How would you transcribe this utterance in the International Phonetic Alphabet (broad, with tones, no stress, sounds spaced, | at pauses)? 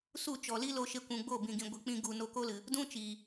s u˦˨ t͡ʃ ɔ˨ l i˦ l o˧ ʃ e˧ kʷ ũ˨ ɡ͡b o˦˨ b ĩ˨ ɡ ĩ˨ ɡʷ ɨ˨ k͡p ĩ˧ ɡ u˨ n o˧ k o˦ l ɨ˨ | d ũ˦ t͡ʃ iː˨